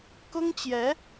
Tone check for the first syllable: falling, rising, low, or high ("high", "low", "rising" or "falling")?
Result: high